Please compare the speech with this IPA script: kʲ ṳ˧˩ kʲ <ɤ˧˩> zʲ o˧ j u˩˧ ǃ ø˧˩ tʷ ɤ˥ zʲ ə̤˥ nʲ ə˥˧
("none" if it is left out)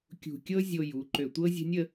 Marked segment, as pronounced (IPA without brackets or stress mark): ɤ˥